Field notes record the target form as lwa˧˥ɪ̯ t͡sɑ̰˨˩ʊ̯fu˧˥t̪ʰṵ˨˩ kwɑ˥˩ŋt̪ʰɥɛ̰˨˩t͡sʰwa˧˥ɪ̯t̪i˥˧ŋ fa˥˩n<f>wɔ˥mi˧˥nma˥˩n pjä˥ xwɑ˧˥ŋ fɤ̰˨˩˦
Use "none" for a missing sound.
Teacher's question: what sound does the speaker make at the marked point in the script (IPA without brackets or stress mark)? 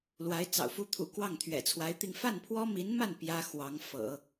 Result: pʰ